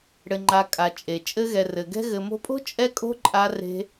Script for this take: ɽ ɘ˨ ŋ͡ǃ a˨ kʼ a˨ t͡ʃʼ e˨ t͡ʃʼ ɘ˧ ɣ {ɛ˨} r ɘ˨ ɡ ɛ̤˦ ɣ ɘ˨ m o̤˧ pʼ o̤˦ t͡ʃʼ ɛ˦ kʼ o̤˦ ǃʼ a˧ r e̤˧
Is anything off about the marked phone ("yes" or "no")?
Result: no